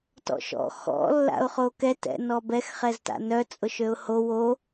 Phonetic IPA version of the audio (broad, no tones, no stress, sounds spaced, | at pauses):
t ɔ̰ ʃ ɔ̰ x ɔ̰ lː a̰ ʊ̯ χ o k ɛ t ɛ̰ n ɔ b ɛ x χ ɛ z t a̰ n œ t͡sʼ ʊ ʃ ø ʊ̯ h o w o